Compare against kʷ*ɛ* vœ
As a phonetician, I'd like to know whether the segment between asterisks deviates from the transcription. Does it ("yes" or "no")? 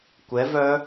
no